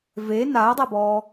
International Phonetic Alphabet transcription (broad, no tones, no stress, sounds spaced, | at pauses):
v e n a ə̯ dˤ ɛ b ɔː